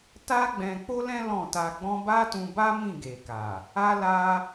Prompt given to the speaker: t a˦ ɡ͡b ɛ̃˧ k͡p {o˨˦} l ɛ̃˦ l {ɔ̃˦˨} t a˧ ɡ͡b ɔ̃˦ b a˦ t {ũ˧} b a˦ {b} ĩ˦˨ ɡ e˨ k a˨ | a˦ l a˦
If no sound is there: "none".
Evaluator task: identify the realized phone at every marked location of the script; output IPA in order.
o˦, ɔ̃˦˨, ũ˧, m

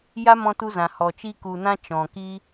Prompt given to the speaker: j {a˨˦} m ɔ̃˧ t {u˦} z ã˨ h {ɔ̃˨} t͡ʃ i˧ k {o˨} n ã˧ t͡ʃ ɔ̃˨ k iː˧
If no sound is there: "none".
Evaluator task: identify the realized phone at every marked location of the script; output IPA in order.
a˦, u˧, ɔ˨, u˨

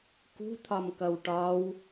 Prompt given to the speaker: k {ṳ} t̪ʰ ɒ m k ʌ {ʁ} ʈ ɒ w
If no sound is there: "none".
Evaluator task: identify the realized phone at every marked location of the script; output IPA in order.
ṳ, w

